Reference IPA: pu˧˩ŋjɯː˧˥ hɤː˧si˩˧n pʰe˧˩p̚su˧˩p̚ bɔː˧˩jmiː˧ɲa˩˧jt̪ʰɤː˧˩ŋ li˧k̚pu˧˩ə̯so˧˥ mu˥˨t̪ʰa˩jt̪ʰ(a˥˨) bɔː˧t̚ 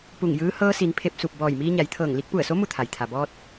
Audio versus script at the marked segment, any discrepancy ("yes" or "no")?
yes